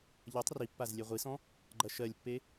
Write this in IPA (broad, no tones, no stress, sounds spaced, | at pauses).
ʎ ɐ tˤ r i pː a z lʲ e ʁʷ i s ɔ̃ | ɡ͡ǃ ɐ ʃ ɜ lʲ pː e